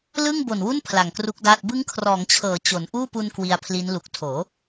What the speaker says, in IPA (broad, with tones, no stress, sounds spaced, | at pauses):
l ɯ˥˩ ŋ b o˨˩ n w u˥˩ n pʰ l a˨˩ ŋ k r u˦˥ k̚ d aː˥˩ t̚ b ɯ˦˥ ŋ kʰ r ɔː˩˦ ŋ t͡ɕʰ ɤː˩˦ t͡ɕ o˩˦ n ʔ uː˥˩ p u˧ n k w i˧ a̯ pʰ l i˦˥ n l u˨˩ k̚ tʰ oː˩˦